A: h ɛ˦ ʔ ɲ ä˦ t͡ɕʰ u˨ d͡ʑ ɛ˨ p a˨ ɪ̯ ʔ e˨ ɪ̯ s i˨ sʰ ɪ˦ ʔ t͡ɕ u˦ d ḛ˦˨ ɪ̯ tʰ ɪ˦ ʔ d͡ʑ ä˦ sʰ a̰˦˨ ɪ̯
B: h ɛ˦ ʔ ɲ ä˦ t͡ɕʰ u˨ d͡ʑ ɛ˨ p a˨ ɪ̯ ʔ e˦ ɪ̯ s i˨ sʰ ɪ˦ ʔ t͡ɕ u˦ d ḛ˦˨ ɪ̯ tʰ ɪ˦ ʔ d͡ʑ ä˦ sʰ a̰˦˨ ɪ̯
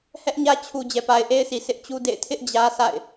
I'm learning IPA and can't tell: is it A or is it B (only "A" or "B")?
B